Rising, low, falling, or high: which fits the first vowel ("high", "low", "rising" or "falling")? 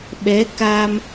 rising